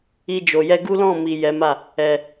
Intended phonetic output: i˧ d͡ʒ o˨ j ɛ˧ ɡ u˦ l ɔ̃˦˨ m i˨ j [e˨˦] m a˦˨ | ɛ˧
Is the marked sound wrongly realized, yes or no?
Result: yes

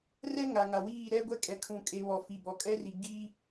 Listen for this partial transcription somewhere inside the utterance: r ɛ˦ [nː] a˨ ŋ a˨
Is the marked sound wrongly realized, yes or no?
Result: yes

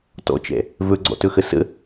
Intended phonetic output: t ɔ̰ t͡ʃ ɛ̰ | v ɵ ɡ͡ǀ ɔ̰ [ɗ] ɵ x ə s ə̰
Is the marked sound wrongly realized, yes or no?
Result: yes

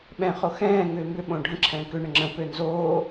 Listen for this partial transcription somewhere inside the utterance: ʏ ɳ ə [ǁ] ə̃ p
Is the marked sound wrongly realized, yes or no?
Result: yes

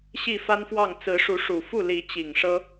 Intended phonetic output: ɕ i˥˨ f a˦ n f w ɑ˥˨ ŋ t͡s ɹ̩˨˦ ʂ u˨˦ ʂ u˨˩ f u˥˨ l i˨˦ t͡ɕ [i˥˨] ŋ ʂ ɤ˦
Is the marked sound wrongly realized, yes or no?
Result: yes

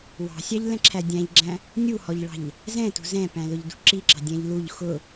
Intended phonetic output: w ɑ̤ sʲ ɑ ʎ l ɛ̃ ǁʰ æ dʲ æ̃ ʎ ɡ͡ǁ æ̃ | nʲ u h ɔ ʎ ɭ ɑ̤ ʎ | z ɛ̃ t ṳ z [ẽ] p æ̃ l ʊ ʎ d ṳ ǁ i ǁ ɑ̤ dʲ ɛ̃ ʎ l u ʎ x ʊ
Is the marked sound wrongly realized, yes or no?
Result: yes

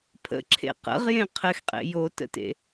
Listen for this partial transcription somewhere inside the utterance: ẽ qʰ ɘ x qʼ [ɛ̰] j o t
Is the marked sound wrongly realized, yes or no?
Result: yes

